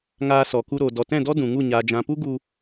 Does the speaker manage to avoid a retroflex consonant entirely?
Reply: yes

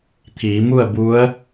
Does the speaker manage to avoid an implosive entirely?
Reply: yes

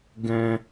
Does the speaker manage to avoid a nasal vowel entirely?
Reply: no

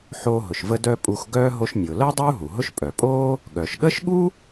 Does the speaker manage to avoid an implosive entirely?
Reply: no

